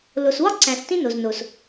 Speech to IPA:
l o˨ s w ɒ˦ ǀ æ̃˨ s t ĩ˦ n o˨ z n o˨ s

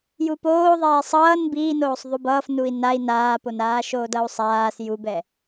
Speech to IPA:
j u p oː ðˤ ɛː sˤ ʌː n b iː n oː sˤ ðˤ u b ʌː f n u i̯ n a i̯ n aː p o n aː ʃ oː d ʌ u̯ sˤ aː s j u b ɛ

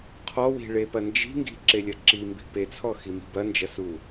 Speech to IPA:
qʰ ɔ w i̤ ɭ e p ɐ n d͡ʒ i̤ ŋ ɡ i̤ ǁ e lʲ ɐ ǁ i m b i̤ p e t͡sʰ ɔ x i m i̤ b ɐ n d͡ʒ ɐ s u

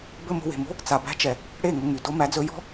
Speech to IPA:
b ɘ˦ m o̤˧ w e̤˨ m o̤˦ | t͡s a˨ b æ̤˧ t͡ʃ ɛ˨ | ɽ e˦˨ ŋ ɵ˧ ŋ y˨ d o˧ m æ˨˦ d͡z ɵ˨˦ j ɔ̤˦

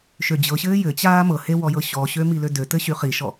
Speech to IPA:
ʃ ø d͡ʑ ɤ ɕ ɘː j ɘ t͡ɕ aː m ɤ h e w ɔ j ɤ ɕ ɔ ɕ ø m i l ø d ø t ɘ ɕ y χ i ʃ ɔ

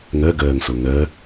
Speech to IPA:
ŋ ɜ ɡ ɜː ŋ s o ŋ ɜ

